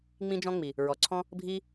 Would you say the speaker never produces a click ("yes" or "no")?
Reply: no